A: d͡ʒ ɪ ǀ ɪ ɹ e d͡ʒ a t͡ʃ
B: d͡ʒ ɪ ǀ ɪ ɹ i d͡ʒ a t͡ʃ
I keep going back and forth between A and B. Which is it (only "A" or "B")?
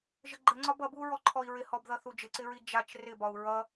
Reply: B